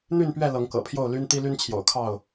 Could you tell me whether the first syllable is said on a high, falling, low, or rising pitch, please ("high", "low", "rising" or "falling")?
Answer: falling